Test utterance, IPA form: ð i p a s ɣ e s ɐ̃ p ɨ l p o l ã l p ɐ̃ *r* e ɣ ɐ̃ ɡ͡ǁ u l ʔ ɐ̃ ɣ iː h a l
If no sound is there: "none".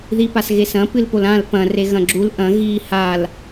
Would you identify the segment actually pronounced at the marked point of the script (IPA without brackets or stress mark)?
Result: r